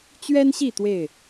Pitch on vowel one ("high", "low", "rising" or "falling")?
high